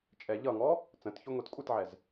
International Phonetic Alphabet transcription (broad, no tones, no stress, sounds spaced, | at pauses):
t͡ʃʼ ɛ ʎ ʌ ŋ ɔ | t͡s ə̃ t ç ʊ ŋʷ i t kʷʼ ɪ t ʕ ɛ z